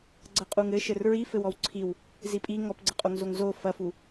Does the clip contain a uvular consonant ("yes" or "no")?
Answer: yes